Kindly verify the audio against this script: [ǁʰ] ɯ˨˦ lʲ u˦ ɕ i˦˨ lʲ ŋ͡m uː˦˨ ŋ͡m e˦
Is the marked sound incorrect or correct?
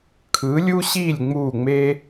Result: incorrect